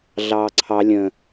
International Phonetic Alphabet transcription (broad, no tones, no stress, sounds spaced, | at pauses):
ɮ ɑː ǀʰ ɑ lʲ ə̃